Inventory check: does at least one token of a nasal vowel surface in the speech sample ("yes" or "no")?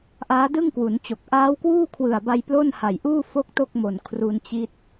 no